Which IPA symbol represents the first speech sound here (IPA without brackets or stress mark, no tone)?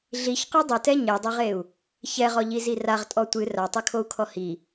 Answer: ɮ